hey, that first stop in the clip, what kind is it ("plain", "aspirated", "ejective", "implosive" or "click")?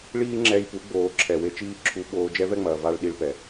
click